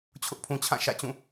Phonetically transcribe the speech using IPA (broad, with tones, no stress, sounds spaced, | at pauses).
t͡ɕʰ ʊ˦ ʔ pʰ ũ˨ t͡ɕʰ ã˦˨ ʃ ä̰˦˨ t͡ɕ ũ˦˨